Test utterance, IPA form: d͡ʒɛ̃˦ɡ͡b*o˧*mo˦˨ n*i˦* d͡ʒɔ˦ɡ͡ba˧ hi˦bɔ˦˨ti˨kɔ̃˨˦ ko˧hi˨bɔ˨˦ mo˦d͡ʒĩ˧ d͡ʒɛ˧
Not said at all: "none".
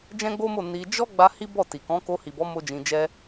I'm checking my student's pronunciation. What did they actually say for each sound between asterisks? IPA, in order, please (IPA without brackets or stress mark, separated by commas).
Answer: o˦, i˧